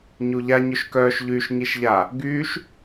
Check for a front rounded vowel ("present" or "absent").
present